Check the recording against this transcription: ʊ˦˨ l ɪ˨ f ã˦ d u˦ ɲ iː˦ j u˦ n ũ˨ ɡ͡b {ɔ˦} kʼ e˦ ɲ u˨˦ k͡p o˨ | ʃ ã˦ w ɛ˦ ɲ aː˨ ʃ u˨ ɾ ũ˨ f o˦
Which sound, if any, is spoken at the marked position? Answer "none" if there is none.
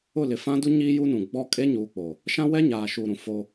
ɔ˦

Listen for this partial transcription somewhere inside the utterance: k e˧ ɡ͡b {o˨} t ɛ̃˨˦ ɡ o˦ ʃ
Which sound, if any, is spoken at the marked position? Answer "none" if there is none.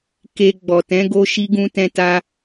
ɔ˨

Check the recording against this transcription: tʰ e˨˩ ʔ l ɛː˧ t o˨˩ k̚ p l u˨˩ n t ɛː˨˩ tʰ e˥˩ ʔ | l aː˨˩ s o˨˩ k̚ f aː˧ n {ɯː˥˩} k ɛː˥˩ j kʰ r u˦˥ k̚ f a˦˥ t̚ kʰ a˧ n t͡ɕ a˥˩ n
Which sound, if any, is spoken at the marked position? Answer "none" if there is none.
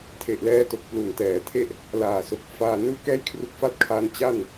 ɯː˥˩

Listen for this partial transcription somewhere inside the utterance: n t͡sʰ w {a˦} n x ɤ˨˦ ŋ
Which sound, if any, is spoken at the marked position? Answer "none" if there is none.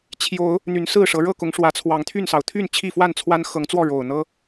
a˦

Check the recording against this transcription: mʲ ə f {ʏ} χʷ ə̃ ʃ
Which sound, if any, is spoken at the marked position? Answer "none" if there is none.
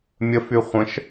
y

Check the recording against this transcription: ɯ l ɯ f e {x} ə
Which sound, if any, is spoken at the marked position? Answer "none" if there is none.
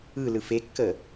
kː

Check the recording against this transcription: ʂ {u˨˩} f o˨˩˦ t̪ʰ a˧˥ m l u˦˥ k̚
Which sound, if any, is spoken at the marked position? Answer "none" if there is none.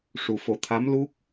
u˨˩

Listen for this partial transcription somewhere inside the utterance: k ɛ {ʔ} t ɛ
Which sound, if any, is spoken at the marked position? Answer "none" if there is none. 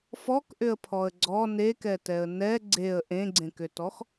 none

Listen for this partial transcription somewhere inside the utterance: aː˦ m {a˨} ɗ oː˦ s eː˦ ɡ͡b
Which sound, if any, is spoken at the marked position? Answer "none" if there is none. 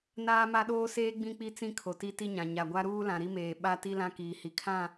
a˦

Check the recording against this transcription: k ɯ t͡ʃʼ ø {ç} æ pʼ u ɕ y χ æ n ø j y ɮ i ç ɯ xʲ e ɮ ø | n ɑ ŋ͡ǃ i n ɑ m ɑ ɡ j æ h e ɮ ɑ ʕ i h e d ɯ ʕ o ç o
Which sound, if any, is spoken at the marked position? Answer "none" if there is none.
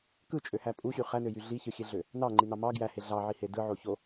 h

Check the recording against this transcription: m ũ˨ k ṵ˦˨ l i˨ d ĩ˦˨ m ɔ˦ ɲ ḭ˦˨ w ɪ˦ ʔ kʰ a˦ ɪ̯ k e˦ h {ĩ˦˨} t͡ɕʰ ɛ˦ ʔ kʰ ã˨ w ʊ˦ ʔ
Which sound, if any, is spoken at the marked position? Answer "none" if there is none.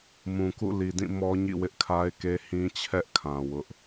ĩ˦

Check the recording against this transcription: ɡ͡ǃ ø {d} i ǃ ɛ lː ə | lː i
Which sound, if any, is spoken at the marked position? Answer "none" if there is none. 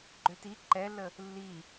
t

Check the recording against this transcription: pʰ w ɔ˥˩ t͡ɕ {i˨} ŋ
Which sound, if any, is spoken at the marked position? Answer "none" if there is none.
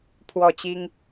i˥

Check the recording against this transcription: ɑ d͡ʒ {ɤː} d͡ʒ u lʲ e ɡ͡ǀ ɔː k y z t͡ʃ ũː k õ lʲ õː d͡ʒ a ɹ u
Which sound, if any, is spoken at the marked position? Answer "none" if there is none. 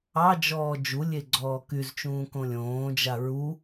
ɔː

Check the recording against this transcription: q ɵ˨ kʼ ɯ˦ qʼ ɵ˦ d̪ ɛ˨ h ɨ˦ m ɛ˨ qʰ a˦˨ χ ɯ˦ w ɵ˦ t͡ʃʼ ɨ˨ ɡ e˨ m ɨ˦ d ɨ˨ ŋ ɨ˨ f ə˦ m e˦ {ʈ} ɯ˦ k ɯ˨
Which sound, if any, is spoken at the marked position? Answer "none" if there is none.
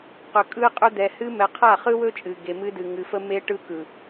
ʈ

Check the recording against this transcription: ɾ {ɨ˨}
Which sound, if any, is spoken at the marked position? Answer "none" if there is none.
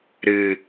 ɨ˨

